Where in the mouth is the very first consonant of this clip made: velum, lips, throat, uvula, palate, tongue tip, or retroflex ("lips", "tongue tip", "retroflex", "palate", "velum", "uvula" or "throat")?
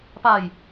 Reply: lips